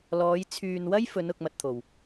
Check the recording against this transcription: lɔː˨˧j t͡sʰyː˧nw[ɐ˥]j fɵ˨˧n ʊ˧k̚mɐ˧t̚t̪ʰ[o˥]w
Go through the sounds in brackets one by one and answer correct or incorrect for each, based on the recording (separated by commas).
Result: correct, incorrect